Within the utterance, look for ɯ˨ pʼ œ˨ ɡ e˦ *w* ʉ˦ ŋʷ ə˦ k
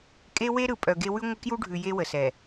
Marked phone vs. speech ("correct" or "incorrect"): correct